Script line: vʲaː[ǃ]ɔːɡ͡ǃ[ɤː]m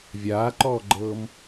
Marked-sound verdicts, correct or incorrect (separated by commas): correct, correct